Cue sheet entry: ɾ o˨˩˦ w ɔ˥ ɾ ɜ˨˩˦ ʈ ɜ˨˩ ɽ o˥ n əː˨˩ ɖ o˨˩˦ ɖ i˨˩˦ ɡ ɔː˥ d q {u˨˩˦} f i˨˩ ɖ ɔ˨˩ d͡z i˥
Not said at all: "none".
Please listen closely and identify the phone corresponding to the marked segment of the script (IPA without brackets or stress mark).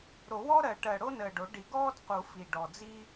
u˨˩˦